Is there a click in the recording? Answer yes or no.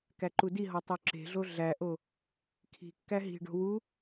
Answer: yes